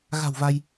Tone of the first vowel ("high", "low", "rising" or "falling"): low